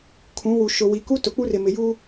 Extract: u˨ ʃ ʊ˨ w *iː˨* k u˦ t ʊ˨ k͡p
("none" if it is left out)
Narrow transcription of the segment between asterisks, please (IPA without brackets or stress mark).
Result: i˨